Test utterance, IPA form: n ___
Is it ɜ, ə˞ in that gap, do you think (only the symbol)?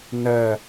ɜ